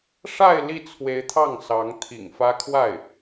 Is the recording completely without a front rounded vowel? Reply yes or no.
yes